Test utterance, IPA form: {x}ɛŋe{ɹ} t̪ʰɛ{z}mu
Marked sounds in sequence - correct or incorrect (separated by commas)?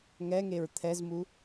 incorrect, correct, correct